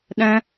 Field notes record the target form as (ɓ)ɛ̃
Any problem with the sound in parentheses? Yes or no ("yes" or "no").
yes